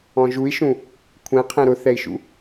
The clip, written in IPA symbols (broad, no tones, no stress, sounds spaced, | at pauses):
ɔ̃ ʒ u i̯ ʃ ũ | kʷʰ ɛ̃ qʰ ɛ̃ ɾ ʊ θ ɛ i̯ ʃ ṵ